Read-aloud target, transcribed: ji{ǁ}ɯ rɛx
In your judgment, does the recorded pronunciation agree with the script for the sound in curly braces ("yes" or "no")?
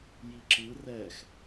yes